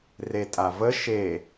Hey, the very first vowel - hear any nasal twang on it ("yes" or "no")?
no